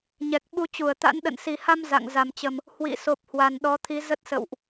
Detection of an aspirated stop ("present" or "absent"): present